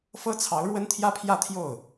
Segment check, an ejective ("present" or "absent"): absent